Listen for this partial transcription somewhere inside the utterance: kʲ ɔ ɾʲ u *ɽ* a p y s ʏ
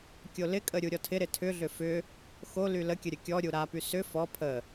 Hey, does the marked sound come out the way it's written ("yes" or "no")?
no